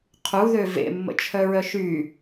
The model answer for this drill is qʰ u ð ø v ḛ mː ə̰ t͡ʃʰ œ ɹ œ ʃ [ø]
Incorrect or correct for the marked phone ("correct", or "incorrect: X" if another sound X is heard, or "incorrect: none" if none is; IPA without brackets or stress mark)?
incorrect: y